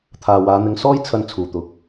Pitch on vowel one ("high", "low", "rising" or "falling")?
low